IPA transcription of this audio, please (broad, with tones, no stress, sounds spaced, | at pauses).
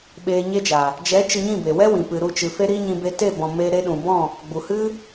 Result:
ɓ eː˧ ɲ e˦ d͡ʒ a˨ | d͡ʒ ɛ˨˦ t͡ʃ ɨ˧ ɲ ĩ˦˨ b e˨ w ɛ˦ w ĩ˨ p ɨ˨ ɾ u˦˨ t͡ʃ ɨ˨ f e˦ ɾ i˦ ɲ ĩ˧ b e˧ t e˦˨ b ɔ̃˨ m e˧ ɾ e˧ ɗ ũ˨ b ɔ̃˦˨ | ɡ͡b u˨ h ɨ˦